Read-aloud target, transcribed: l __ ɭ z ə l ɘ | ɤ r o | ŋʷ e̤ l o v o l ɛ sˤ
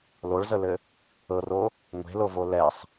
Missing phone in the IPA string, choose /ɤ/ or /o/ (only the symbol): o